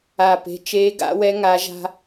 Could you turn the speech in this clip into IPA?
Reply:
a˧˩ pe̤˩˧˩t͡ʃeː˨˦ɡa̰˨˦wɛ˨˦ ŋa˨˦ʒa̤˦

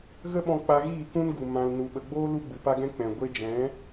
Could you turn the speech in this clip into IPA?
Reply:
ɣə˦ɓɔ̃˧ k͡pa˧ɣiː˦˨kũ˦nɡu˨ mã˨l nu˨ɓə˨ɡ͡boː˦ lu˦ɡ͡bɨ˨pa˦ɡɛ̃˦ k͡pɛ̃˨ ɡʷe˧d͡ʒɛ̃˨˦

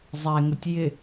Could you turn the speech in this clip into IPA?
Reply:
zˤɛŋʊtʲ jɪ

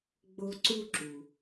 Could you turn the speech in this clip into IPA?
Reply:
ɡ͡bo˥ ǀu˥ǁu˩

